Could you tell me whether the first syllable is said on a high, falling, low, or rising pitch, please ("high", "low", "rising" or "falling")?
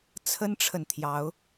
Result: high